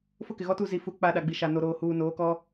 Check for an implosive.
present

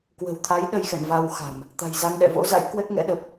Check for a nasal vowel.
absent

